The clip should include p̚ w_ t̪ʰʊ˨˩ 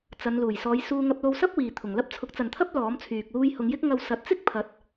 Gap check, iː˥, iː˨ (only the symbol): iː˨